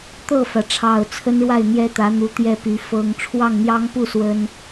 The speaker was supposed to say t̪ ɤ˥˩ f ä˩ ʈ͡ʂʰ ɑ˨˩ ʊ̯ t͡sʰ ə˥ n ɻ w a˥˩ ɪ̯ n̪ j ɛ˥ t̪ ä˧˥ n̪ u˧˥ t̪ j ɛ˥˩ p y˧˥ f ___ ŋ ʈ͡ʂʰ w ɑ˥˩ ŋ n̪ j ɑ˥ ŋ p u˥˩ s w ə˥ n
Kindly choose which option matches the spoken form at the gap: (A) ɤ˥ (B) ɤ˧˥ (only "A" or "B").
A